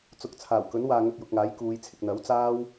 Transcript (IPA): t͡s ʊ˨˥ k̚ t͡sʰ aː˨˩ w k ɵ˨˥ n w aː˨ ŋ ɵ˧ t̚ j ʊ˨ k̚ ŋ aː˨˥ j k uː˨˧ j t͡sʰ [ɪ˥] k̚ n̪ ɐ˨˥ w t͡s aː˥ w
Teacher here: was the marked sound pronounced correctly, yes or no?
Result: no